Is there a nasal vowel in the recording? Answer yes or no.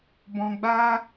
yes